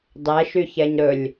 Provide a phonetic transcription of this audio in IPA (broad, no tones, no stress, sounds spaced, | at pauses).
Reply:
dˤ ɛ ʃ y ç ɛ ɲ ɾ ɵ lʲ